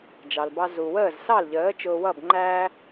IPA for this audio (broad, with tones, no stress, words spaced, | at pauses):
d͡ʒɑ˩lbɑ˧ zu˩ wəː˥˩zsɑ˥˩lʎəː˩˥ t͡ʃʊː˧wʌ˥˩b ŋ͡ǃæː˧